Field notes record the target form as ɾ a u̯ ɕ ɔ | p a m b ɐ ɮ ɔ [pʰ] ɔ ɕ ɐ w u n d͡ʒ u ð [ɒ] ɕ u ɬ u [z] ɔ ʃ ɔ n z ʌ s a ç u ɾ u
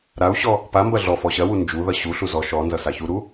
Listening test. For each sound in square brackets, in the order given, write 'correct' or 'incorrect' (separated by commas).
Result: incorrect, incorrect, correct